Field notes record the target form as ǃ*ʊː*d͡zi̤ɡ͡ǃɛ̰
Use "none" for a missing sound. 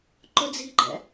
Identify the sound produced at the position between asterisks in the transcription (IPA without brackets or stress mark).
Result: ʊ